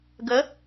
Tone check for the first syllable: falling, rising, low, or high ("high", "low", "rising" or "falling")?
rising